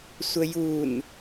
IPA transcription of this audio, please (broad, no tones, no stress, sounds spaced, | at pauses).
sʷ ə j u n